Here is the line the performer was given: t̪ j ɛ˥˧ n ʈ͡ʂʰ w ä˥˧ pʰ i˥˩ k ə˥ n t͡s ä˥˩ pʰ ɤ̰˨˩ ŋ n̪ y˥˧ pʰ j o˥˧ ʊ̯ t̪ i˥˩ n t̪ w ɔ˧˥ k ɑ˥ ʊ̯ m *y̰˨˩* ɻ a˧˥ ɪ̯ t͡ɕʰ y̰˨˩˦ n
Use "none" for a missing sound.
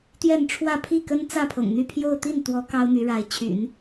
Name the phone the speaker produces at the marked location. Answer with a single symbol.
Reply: y˧˥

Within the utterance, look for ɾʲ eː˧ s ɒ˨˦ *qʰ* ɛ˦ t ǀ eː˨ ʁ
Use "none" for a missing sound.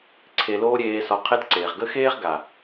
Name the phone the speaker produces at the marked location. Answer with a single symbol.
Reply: qʰ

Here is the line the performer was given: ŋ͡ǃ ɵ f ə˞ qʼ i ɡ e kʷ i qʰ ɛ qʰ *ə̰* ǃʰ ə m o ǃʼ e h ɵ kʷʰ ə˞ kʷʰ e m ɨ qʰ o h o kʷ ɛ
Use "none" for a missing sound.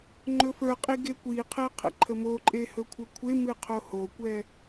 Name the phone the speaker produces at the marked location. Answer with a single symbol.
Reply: ə̰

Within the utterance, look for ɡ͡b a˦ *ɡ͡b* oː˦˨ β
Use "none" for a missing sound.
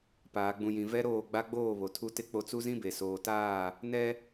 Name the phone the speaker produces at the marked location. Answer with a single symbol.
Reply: ɡ͡b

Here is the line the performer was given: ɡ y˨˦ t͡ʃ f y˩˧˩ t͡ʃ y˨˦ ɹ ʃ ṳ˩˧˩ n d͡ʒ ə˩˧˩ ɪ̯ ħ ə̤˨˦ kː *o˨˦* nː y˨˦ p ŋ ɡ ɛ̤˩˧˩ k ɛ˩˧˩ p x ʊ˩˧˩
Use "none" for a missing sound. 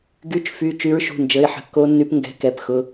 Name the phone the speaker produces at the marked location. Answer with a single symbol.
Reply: o˨˦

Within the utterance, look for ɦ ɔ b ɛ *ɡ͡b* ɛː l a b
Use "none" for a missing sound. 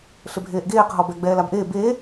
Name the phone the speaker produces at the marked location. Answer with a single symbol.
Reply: ɡ͡b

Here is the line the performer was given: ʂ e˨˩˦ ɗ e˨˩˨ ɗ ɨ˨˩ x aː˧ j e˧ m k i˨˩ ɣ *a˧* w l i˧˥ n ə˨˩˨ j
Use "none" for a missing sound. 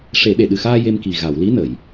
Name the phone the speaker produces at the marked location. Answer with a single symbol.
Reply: a˨˩˨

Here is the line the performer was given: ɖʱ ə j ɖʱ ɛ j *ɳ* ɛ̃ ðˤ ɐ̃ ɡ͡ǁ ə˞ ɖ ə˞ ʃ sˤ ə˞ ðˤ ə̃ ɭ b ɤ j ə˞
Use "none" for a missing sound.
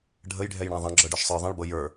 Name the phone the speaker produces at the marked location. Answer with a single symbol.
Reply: ɳ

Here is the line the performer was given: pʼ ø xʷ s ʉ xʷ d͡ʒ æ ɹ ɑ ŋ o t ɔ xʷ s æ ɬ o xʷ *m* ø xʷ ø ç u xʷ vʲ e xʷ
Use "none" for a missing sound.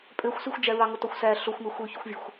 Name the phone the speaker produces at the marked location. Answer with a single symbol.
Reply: m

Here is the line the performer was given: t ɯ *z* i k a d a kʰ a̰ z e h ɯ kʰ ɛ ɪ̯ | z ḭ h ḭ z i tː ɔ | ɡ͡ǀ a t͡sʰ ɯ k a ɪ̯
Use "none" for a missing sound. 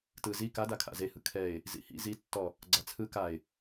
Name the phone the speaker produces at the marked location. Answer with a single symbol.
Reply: z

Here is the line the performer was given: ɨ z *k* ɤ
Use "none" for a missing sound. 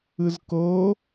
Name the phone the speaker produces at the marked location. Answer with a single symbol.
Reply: k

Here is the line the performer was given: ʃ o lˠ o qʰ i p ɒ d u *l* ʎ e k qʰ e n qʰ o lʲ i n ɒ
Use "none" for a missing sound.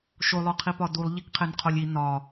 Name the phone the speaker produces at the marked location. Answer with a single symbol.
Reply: lˠ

